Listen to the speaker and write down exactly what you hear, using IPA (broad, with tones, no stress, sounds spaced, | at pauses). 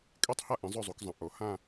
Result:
kʼ e˥˧ tˤ h a˥˧ ʔ ĩ˨˦ zˤ ɵ˥˧ zˤ u˨˦ k zˤ ɐ̃˨˦ ʔ o˨˦ h ã˥˧